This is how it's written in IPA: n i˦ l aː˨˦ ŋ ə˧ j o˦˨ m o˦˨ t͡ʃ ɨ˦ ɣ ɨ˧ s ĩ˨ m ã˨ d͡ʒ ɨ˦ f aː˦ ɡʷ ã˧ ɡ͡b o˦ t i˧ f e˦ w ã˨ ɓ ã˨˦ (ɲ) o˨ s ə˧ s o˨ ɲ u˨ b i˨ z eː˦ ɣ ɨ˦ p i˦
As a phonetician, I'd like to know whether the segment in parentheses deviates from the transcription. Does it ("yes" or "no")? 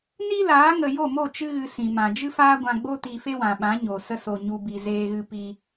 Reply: no